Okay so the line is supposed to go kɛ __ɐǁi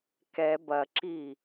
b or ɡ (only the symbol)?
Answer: b